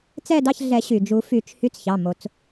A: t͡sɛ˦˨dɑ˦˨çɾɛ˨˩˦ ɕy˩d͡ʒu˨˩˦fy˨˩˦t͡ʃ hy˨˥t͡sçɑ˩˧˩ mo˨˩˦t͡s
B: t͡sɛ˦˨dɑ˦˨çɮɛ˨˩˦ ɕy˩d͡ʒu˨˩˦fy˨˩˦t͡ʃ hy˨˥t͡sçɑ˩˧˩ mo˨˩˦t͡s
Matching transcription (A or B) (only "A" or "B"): B